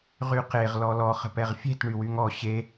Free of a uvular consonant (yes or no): no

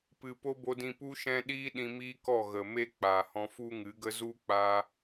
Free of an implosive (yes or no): no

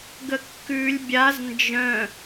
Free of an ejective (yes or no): yes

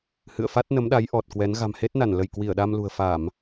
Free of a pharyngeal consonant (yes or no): yes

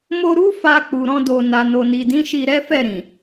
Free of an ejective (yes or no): yes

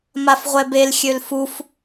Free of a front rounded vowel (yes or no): no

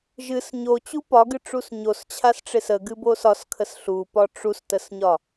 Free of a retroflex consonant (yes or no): no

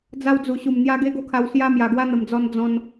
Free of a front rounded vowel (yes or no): yes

